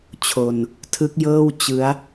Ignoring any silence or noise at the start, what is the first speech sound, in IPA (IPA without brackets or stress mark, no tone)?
t͡ɕʰ